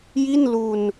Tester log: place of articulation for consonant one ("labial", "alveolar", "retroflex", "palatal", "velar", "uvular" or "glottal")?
palatal